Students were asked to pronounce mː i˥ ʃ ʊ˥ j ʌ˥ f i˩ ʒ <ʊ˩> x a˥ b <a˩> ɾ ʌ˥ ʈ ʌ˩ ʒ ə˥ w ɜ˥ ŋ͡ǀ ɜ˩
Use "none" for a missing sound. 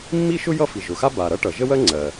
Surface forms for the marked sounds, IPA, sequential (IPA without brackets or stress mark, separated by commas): ʊ˩, a˩